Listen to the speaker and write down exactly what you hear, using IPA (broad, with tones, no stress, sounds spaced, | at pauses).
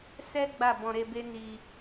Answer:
s ɛ˦ ɡ͡b a˦˨ b ɔ̃˧ ɾ e˧ b e˦ n i˧